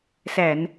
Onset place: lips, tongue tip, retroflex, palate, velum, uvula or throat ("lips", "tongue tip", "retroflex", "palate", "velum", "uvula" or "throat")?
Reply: tongue tip